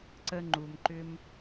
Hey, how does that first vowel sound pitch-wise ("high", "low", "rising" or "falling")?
high